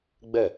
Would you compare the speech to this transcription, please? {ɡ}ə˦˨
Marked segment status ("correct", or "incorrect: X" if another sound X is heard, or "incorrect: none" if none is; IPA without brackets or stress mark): incorrect: ɡ͡b